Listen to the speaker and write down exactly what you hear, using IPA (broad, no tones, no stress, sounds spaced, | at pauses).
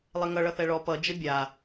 lˠ e ŋ ʌ ɭ ʌ θ ɛ ɭ ɔ p ʌ d͡ʒ ə bʲ a